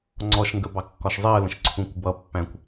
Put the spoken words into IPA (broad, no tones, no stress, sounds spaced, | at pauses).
ŋ͡ǀ ɔ ʃ ŋ ɡ ə b ɑ kː ɒ ʃ zˤ i ə̯ l ə̃ ʃ ǀʰ ũ kʷ b ʌ pː æ̃ kʷ